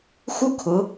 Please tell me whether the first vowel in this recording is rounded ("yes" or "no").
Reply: yes